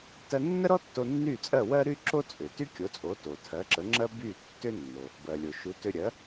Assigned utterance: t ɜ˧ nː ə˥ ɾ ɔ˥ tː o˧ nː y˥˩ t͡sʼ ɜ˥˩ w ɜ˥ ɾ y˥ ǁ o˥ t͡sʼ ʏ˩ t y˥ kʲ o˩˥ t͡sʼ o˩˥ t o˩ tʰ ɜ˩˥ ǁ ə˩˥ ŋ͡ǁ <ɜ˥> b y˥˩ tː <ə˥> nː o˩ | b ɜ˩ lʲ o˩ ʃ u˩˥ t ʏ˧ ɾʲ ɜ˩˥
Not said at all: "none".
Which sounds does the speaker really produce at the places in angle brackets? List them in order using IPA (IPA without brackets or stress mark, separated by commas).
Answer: ɜ˥, ʏ˥